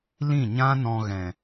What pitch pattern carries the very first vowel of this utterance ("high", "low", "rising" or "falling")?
falling